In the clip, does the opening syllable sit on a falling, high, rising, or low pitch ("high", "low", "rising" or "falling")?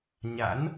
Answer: rising